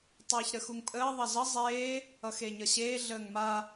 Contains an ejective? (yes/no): yes